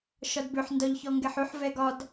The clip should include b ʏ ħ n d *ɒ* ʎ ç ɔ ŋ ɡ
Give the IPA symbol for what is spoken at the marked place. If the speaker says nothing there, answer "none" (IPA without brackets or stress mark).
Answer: ɒ